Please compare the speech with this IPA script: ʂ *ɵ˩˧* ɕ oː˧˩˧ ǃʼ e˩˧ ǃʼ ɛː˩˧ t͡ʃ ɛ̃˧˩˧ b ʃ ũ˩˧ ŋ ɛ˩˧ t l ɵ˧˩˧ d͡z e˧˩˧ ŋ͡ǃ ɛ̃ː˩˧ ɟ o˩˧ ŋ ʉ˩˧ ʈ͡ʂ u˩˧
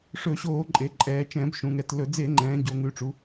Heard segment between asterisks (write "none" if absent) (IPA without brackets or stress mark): ɵ˧˩˧